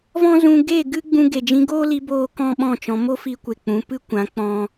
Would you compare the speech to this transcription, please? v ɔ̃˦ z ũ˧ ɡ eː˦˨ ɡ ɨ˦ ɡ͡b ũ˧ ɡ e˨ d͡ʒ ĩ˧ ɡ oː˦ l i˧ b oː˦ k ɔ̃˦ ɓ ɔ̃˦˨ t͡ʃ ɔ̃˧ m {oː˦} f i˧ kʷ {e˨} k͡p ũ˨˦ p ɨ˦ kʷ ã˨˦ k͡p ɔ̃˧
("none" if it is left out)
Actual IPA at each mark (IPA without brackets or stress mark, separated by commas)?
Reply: o˦, e˨